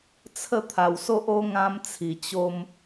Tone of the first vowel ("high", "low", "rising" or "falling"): falling